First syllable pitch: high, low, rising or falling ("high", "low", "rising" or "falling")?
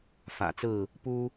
low